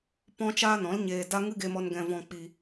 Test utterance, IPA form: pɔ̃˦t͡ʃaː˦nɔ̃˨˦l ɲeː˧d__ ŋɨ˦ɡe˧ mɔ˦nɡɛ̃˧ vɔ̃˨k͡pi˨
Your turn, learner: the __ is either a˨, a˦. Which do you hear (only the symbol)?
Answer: a˦